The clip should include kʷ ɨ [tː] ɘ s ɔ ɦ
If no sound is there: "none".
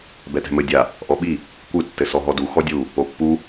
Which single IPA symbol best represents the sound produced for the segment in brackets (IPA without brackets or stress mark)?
tː